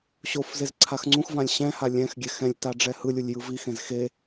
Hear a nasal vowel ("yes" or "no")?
yes